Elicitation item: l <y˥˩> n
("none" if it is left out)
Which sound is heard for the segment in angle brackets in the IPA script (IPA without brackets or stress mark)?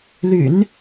y̰˨˩˦